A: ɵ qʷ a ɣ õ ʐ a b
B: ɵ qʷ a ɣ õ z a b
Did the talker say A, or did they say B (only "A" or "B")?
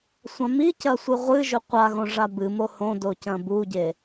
A